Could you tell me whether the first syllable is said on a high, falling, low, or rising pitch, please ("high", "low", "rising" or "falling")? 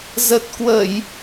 low